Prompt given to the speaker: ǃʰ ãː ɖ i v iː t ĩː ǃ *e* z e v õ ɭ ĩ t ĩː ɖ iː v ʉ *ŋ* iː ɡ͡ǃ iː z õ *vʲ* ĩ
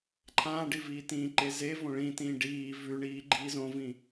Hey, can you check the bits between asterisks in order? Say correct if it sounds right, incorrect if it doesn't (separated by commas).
correct, incorrect, incorrect